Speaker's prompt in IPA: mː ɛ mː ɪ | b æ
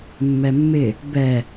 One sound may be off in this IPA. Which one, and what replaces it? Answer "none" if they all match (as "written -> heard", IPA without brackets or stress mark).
æ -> ɛ